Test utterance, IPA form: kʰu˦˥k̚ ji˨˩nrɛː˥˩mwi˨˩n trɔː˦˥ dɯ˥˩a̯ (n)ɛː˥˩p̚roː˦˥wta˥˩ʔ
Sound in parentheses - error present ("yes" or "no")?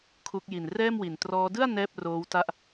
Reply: no